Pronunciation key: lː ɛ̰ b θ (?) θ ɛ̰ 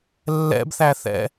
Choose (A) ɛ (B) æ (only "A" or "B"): B